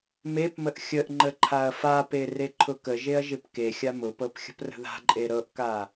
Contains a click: yes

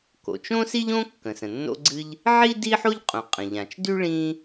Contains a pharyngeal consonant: yes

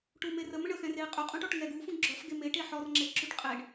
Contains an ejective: yes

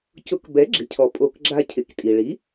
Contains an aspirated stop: yes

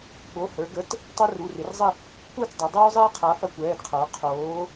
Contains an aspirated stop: yes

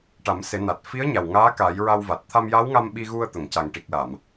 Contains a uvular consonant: no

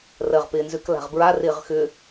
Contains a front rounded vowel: yes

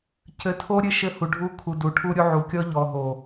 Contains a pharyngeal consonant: yes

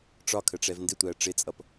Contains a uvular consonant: no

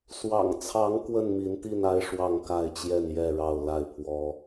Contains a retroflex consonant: yes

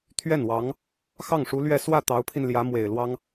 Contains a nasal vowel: no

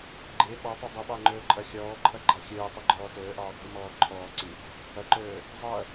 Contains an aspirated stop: yes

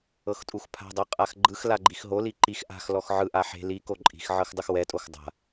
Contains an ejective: yes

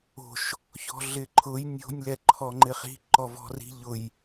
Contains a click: yes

